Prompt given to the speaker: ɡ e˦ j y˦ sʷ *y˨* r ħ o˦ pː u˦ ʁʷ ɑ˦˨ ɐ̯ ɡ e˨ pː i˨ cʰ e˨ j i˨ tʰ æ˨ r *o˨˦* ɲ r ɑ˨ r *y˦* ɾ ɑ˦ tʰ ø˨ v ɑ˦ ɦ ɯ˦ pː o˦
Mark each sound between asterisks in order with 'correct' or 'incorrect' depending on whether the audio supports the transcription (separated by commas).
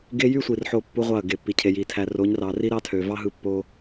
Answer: incorrect, correct, incorrect